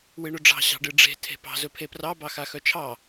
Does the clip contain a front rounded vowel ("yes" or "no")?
yes